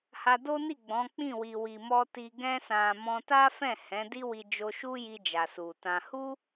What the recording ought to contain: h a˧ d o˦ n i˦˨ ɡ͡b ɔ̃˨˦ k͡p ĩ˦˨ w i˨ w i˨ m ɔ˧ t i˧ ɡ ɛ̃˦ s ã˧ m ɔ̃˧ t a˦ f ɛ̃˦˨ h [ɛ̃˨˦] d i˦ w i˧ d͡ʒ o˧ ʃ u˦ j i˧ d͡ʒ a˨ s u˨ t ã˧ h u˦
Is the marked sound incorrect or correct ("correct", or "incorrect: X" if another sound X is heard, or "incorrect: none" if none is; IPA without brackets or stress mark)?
correct